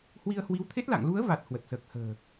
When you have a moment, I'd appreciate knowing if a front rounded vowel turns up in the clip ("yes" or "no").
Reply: no